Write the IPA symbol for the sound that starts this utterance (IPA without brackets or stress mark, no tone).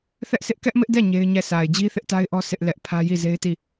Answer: θ